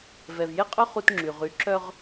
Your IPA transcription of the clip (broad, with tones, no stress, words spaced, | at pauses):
vɛ˨vje˦qʼœ˦ χu˦tŋ͡ǁy˨ ʁy˨˦ǁœ˦ʁ